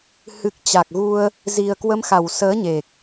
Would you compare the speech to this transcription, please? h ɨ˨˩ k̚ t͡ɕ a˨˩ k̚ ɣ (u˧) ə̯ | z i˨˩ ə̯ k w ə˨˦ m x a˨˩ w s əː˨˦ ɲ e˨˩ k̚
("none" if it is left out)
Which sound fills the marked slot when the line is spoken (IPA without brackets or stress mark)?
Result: u˧